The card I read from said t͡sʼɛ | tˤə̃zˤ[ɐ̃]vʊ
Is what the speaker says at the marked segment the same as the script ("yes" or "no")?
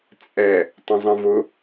no